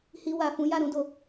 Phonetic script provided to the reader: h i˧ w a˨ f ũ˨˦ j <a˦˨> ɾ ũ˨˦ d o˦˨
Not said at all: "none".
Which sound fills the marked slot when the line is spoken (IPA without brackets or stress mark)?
a˦˨